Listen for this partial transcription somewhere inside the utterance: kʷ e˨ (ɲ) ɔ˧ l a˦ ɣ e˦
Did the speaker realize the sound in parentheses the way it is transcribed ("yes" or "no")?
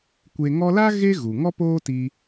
no